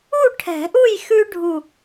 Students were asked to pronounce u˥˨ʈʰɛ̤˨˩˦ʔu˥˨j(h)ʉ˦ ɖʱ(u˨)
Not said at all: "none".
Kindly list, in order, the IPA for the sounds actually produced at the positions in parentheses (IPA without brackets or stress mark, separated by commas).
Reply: x, u˥˨